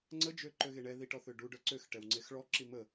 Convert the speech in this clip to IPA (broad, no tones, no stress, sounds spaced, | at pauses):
ŋ͡ǀ ə d͡ʒ ø ǃ ø ɣ e ɳ ɛ ð i ʈ ɔ θ ø ɖ u ɖ œ ǀ ø x ʈ ɛ w ŋ͡ǀ e x ɭ ɔ ǁ i m ə